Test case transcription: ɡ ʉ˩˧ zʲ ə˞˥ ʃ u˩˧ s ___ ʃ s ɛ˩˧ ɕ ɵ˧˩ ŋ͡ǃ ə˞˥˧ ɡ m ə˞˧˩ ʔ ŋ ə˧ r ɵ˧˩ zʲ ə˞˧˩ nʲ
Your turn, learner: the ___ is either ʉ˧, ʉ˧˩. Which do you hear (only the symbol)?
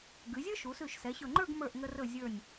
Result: ʉ˧˩